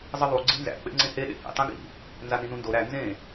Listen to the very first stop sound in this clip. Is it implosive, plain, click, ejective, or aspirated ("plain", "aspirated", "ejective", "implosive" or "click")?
click